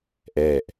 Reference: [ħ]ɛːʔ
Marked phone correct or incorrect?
incorrect